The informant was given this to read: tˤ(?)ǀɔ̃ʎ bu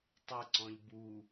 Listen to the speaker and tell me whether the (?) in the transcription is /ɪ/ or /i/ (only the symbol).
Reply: ɪ